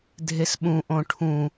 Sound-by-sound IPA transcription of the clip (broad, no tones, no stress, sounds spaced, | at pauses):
dʱ e s ɓ ũ ʔ õ ʈʰ ũ